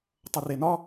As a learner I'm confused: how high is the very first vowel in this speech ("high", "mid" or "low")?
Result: mid